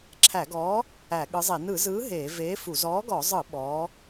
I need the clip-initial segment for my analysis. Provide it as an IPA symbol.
ǁʰ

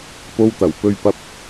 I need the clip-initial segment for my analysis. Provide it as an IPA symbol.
p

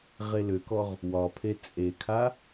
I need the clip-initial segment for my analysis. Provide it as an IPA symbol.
ʁ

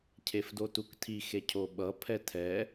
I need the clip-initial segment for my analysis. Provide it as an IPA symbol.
cʰ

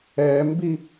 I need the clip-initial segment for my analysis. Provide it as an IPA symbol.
ɛ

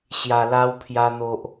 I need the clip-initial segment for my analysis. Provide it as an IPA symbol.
ɕ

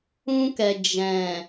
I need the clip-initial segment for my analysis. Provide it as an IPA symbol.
ũ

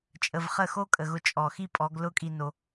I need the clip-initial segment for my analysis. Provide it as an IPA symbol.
t͡ʃʼ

